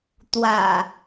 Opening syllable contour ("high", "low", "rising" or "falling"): low